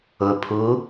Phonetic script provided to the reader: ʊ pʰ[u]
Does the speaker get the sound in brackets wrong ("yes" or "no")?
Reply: no